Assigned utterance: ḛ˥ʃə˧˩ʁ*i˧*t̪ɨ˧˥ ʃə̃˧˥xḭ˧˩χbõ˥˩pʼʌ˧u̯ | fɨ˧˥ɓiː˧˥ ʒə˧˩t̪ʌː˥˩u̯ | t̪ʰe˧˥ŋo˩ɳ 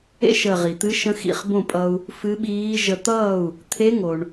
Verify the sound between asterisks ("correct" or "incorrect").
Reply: incorrect